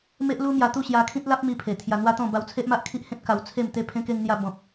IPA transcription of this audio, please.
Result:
m e˦ ʔ l u˦ m j a˧ t̪ u˥˧ ɕ j a˧ kʰ ĩ˦ t̚ l a˦ p̚ m i˧ pʰ e˨˩ t̪ʰ j a˧ n̪ w a˦ t̪ ɔ̃˥˧ b a˧ w t͡sʰ e˦ ʔ m a˦ ʔ kʰ i˦ ʔ h ẽ˦ t̚ k a˧ w t͡sʰ e˥˧ m t̪ e˥˧ pʰ ẽ˧ k e˧ ŋ n̪ j a˧ b ɔ̃˨ p̚

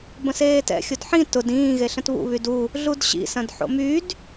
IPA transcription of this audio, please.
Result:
b ə̃ s eː t ɛ̰ xʲ ʊ d ħ ĩ t ʊ d ĩː ɣ e ɬ ə̃ t β ṵ β y d u | ɮ u d ɕ ḭ s ɐ̃ d ħ o̰ m y d

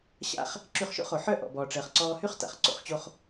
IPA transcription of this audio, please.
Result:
ɕ a̰˧ χ | ǁ y˧ χ ʃ o̰˥ χ o˩ ħ œ˥ ʔ ɔ̰˩ b ɔː˩ ʈ͡ʂ əː˩ χ ǀ ɔː˧ h y˥ χ t a̰˩ χ ǀ o̰˧ χ t͡ɕ o˧ χ

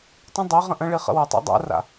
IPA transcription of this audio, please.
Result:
tˤ ə̃ dˤ i ʁ ə̃ ʔ ə̃ ɭ i χ ə̰ w ə tˤ a̰ dˤ a̰ r a̰

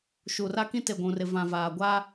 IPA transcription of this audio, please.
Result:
ʃ u˨ r a˦ k ĩ˦ t e˨ ɡʷ ũ˨ r ɪ˨ v ã˨ v aː˨ ɡʷ a˦

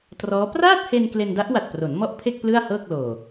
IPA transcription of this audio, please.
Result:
t r ɔː˦˥ p r aː˥˩ t̚ h e˧ n k l e˧ n d a˦˥ ʔ w a˨˩ t̚ p r o˩˦ n m ɔ˥˩ ʔ pʰ e˥˩ k̚ p l ɯ˥˩ a̯ h ɤː˥˩ k̚ l oː˨˩

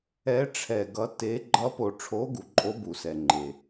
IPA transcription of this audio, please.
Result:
ɛ˧˥ ʈ͡ʂʰ ɛ˨ ɡ ʌ˧˥ t e˧˥ ɡ͡ǃ ʌ˧˥ p o˨ ʈ͡ʂʰ o˧˥ ɡ u˨ ǃʼ o˧˥ b u˨ s ɛ˨ ŋ͡ǃ e˨

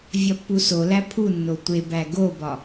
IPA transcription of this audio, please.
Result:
vʲ ɒ pː u s o l æ pʰ u nː o tʷ e b æ ɡ o b ɒ

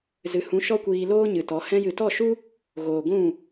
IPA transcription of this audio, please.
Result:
z ɨ˨ h ũ˨˦ ʃ ɔ˦ kʷ iː˧ l oː˦ ɲ ɨ˨ t ɔ˨˦ h ɛ̃˧ j ɨ˨ t ɔ˦˨ ʃ u˦ | ɣ oː˨ ɡʷ ũ˦˨

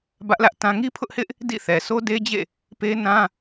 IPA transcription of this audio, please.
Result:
b ä˦ ʔ l ä˦ ʔ t ã˦ ŋ i˦ pʰ ʊ˦ ʔ h ɪ˦ ʔ | d ḭ˦˨ θ ɛ˨ sʰ o˦ d e˦ d͡ʑ ḛ˦˨ | p e˦ n ã˦

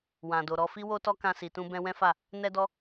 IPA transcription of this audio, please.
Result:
w ã˨ d o˨ ɾ ɔ˧ f i˦ w o˦ t ɔ˦ k ã˧ s i˨ t ũ˧ b ɛ̃˧ w ɛ̃˦ f a˦˨ | n ɛ˦ d ɔ˦

